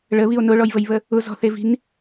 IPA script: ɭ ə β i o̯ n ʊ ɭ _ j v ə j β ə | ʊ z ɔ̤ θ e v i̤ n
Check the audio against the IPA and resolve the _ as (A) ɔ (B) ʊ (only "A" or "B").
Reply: A